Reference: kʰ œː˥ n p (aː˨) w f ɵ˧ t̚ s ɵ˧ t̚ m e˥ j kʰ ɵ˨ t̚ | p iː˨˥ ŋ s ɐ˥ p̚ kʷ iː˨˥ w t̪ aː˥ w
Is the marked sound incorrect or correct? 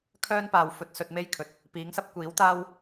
correct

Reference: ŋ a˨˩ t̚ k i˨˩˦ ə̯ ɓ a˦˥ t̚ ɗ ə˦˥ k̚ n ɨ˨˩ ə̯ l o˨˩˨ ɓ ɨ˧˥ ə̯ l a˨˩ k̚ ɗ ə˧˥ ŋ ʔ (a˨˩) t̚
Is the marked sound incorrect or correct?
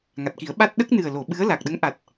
correct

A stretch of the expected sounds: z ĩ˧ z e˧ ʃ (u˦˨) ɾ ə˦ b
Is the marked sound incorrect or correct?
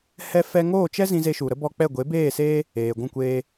incorrect: u˨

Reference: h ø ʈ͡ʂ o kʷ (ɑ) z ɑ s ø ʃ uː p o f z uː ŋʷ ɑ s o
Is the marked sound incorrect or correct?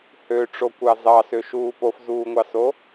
correct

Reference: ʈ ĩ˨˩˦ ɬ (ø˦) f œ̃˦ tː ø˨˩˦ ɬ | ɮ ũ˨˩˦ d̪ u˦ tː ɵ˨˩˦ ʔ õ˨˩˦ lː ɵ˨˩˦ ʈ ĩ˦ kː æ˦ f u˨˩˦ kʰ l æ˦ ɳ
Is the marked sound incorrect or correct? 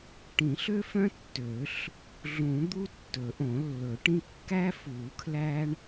correct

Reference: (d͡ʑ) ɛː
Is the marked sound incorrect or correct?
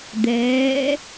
incorrect: d̪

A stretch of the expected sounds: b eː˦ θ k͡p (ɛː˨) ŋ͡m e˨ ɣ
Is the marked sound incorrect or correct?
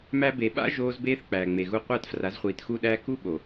incorrect: æː˨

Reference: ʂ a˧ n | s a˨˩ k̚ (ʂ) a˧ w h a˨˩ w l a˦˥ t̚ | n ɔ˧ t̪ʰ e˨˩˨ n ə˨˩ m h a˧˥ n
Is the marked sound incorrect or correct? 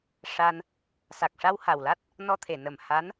correct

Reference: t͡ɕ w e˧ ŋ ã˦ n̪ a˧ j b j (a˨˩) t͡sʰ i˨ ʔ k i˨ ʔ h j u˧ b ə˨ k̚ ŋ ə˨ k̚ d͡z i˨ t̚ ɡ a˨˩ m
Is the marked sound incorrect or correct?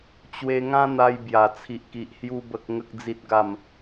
correct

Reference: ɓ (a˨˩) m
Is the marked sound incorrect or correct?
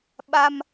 incorrect: a˧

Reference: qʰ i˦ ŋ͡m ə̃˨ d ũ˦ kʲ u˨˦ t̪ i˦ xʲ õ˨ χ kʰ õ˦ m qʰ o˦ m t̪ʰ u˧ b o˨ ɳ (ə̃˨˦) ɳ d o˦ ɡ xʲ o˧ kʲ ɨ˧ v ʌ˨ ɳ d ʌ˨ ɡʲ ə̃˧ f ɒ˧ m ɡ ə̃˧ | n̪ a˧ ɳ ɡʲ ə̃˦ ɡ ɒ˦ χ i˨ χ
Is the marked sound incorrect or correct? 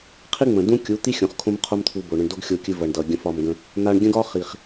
incorrect: ə̃˧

